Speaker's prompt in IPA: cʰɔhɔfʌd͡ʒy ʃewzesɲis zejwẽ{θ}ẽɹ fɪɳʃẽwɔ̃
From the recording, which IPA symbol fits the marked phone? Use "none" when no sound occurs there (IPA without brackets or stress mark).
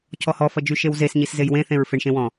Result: θ